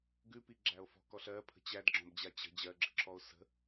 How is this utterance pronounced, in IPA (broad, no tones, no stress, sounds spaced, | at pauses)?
ɡ ʉ p i ɡ͡ǁ æ o̯ f ɔ̤ k ɔ ɬ ɜ pʰ ə̤ t͡ɕ æ d ɡ͡ǁ ɔ̃ b d͡ʑ a t͡ɕ ə̤ d͡ʑ ɜ ɡ͡ǁ ə̤ ǁʰ ɔ o̯ s ə̤